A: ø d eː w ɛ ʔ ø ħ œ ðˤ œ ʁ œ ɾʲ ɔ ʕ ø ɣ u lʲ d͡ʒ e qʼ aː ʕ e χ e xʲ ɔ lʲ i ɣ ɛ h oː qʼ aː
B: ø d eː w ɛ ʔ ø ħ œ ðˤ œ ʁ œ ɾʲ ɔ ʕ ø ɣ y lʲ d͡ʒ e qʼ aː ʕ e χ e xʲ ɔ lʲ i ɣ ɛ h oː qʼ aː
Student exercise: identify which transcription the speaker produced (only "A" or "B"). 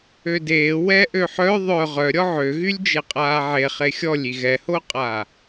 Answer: B